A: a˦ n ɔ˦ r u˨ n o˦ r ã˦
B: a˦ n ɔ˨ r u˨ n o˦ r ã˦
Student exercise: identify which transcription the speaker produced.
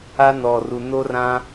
B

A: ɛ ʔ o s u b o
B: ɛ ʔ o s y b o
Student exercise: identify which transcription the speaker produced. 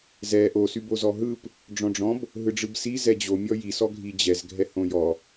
B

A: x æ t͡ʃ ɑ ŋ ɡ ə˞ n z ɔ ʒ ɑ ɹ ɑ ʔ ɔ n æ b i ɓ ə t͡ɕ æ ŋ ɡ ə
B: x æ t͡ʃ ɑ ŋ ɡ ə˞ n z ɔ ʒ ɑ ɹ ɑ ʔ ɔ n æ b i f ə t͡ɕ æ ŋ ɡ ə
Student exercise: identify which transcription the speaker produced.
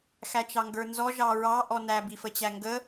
B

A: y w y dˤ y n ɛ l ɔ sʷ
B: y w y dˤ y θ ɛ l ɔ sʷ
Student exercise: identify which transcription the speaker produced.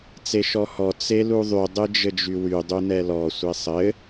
A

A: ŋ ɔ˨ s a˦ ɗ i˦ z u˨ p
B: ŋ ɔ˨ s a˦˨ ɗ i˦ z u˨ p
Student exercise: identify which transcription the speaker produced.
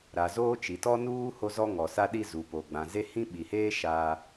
A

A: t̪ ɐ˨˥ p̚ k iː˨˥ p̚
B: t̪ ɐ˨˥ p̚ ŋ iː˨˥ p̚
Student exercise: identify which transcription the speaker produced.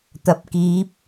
A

